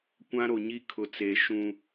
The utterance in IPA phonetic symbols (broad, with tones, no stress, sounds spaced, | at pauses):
kʷ ã˦ ɾ o˨ ɲ i˦ kʰ ʊ˨ t͡s eː˨ ʃ ũ˦